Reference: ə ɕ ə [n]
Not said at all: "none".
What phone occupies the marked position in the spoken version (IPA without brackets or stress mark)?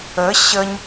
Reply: ɲ